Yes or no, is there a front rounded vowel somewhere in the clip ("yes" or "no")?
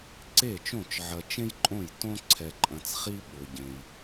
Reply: no